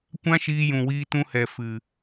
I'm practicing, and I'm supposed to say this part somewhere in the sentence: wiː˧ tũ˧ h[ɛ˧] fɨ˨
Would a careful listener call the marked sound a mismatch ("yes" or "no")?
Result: yes